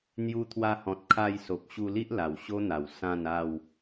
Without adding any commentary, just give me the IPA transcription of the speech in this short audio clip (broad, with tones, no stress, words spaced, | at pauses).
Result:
n̪ju˧t̪ʰwa˧hɔ̃˨t̚ kʰa˧jso˨p̚ ɕu˧li˦ʔ la˨˩wɕo˦n̪a˨˩w sã˥˧na˥˧w